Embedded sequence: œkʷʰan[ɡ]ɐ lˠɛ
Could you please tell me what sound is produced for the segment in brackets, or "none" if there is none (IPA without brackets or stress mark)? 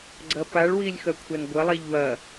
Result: ɡʷ